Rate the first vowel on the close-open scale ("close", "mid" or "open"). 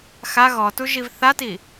open